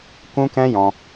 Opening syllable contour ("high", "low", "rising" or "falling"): high